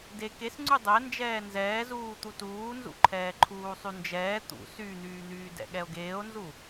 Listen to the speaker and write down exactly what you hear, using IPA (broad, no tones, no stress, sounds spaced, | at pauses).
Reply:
d e k e s ŋ͡ǀ y dˤ ɛ n d͡ʒ ɛː n z ɛː z uː t̪ u t uː n z ṵ ǃʰ ɛː ǃʰ uː sˤ y n d͡ʒ ɛː t̪ ṵ s y n̪ yː n̪ yː d ɛ̰ ɠ ɛ o̯ ɡ eː o̯ n z u